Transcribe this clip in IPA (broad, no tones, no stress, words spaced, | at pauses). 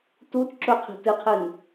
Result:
tut ǁɵqʰi̤ tɨqʰɨn